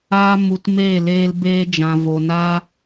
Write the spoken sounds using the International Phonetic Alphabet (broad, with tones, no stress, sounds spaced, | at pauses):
aː˦ m u˧ t m eː˦˨ l eː˧ l b eː˧ d͡ʒ ã˨ v o˨ n aː˦